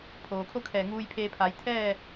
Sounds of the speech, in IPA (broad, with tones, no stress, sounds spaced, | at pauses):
pʰ oː˩ kʰ o˥˨ kʰ ɛː˧˩ ŋ uː˧ j pʰ eː˧ pʰ aː˩˧ j t̪ʰ ɛː˥˨